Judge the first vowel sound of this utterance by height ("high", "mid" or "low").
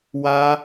low